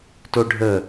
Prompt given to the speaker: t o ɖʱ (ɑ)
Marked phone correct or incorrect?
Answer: incorrect